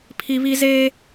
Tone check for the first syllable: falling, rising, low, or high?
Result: high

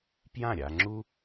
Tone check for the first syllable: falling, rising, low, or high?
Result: falling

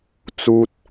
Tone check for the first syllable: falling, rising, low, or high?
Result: high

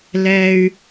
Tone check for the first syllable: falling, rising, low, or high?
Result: high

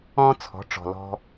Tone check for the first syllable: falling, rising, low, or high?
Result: high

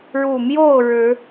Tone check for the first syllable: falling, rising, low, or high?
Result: low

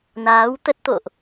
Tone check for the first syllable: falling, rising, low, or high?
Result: rising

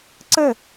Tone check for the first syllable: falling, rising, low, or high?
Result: falling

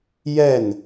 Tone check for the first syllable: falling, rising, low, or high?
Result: falling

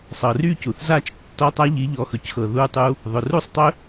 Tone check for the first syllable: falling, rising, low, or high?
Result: low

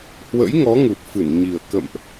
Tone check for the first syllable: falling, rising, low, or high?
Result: rising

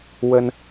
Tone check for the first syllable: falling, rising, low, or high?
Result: high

